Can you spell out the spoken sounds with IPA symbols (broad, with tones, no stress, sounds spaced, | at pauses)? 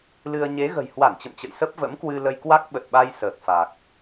l ɨ˧ ə̯ ɲ e˨˦ ɣ ə̤˨˩ j h w a˧˩ n t͡ɕ ə̰˧˨ m t͡ɕ ə̰˧˨ j s ə˦˥ p̚ v ə̰˧˥ m k w ɨ˧ l ə˧ j k w a˦˥ k̚ ɓ ə˨˩ t̚ ɓ a˧ j s əː˨˩ k̚ f a˨˩ k̚